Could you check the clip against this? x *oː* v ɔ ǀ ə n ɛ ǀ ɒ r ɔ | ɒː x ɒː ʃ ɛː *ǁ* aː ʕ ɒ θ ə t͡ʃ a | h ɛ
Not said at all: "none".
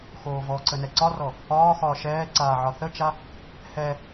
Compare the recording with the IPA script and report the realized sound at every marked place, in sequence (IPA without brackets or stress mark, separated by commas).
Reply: oː, ǀ